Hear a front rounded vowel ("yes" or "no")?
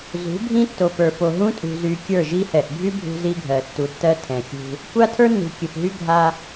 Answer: yes